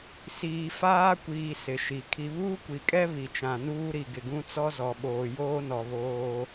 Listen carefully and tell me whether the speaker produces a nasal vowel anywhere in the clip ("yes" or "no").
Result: yes